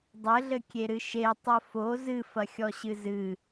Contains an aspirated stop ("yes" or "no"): no